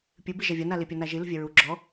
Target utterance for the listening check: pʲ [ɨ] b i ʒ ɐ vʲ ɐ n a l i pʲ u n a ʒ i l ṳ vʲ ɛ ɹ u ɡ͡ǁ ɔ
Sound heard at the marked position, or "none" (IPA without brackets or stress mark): ɨ